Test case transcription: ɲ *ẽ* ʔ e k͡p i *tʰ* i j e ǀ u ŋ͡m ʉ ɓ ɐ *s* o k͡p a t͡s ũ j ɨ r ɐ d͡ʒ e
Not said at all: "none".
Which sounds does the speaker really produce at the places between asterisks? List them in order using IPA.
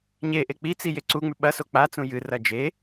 e, t͡s, s

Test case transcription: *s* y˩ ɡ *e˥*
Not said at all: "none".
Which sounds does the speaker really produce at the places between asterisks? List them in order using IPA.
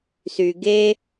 s, e˥

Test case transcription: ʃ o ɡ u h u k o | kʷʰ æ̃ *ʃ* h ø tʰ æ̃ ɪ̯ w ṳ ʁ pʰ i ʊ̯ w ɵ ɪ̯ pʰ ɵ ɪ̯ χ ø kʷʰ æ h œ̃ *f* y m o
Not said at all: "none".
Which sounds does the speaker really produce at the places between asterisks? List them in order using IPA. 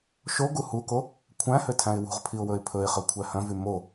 none, v

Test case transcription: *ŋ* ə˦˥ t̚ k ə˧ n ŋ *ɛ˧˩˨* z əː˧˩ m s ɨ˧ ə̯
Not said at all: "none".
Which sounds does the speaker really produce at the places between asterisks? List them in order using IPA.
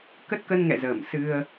k, ɛ̰˧˨

